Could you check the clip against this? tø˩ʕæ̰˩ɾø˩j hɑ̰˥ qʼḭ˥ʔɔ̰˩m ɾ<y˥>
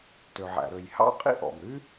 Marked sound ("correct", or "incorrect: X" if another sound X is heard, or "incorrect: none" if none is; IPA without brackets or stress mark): correct